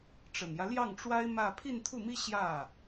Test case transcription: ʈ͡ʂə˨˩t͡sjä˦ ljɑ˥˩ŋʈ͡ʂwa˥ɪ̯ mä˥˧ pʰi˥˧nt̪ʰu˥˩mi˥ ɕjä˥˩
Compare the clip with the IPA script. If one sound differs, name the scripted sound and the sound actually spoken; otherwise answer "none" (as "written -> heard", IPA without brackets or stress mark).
t͡s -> n